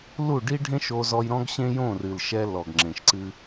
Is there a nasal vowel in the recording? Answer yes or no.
yes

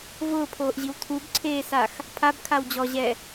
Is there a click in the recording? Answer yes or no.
yes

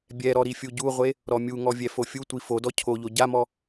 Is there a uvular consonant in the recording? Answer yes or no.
yes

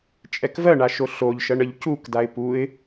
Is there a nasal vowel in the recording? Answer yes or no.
no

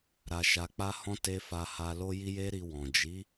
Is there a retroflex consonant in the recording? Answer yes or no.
no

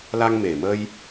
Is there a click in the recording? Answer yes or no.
no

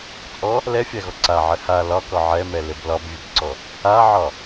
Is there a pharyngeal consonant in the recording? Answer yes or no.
yes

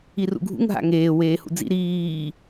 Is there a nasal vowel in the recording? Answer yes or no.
no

